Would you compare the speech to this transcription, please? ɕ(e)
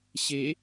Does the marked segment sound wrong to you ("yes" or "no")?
no